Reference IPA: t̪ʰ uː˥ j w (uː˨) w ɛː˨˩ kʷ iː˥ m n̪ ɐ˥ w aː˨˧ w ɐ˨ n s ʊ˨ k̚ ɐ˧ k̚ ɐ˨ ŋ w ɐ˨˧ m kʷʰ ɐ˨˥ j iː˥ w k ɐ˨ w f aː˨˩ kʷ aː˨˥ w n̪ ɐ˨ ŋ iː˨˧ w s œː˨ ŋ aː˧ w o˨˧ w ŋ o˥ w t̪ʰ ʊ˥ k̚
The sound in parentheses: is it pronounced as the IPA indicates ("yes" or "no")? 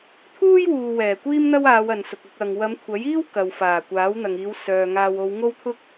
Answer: yes